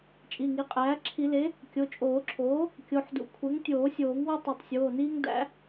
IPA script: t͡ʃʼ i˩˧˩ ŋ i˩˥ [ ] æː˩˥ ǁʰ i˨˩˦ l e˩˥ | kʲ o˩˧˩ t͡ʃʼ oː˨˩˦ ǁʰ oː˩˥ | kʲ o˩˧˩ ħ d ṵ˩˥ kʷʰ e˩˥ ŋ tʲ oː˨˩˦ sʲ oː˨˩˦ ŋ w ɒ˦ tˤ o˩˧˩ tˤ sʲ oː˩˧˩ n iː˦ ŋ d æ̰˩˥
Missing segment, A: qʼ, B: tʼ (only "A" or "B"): A